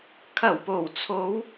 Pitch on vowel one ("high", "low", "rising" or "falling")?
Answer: low